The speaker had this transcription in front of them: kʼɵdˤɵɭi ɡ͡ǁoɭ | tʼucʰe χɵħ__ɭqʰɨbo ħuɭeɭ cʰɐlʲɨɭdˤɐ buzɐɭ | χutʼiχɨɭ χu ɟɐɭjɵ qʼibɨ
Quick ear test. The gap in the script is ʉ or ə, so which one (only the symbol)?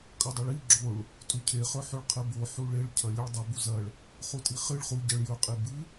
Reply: ʉ